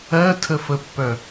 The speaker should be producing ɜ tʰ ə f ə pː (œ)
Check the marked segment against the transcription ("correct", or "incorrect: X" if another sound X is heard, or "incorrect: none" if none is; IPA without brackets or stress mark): correct